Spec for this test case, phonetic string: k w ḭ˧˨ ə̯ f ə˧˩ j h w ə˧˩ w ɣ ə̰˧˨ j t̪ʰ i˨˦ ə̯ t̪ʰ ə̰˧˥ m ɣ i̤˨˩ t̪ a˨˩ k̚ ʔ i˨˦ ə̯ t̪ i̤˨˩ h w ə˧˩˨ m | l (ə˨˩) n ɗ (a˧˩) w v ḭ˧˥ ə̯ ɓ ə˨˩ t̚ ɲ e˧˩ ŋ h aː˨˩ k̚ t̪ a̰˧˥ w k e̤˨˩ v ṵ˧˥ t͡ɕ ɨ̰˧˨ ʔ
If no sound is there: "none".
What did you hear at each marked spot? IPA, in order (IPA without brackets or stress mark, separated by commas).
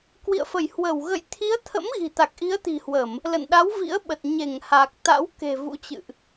ə̰˧˨, a˨˦